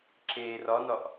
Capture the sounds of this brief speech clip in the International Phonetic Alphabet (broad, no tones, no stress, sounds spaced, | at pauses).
ǁ eː r ɒ n ɒ ʔ